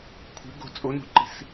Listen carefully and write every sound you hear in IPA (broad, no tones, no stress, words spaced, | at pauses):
kʷʰɛ̤ ɡo̤ t͡sʼonṳǃi̤s